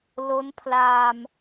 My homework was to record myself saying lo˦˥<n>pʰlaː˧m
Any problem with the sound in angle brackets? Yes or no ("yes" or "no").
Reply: no